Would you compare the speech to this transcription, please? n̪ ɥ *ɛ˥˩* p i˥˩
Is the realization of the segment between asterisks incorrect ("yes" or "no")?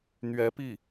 yes